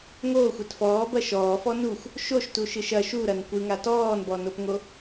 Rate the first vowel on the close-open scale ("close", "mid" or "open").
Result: mid